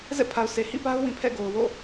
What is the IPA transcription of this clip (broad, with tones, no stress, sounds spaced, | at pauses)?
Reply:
z ɛ̰˦˨ pʰ a˨ ʊ̯ s e˨ h ḭ˦˨ p a˦ ʊ̯ w ĩ˨ pʰ ɛ̰˦˨ ɡ o˨ ʊ̯ w o̰˦˨